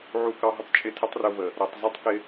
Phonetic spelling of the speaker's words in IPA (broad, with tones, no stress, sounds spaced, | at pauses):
ʕ u˧ k ɑ˧ ɦ ə˦ tˤ t͡ʃʼ ɪ˧ tʰ ə˦ tˤ r ʊ˧ v ə˨ | ɾ ʌ˨ tˤ z ʌ˦ tˤ k ɪ˧